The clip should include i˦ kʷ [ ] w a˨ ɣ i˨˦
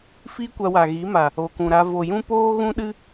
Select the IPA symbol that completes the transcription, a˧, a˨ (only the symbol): a˧